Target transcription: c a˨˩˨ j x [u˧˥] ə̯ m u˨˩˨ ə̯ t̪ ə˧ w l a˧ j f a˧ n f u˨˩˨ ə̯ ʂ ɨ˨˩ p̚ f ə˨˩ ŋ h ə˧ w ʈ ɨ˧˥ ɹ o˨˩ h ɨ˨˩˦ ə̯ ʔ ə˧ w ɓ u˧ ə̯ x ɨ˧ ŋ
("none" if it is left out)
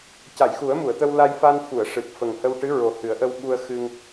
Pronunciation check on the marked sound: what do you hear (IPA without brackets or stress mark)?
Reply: u˨˩˦